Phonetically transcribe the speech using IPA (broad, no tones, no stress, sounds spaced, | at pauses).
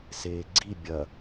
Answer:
s eː ɡ͡ǀ i bʲ ɐ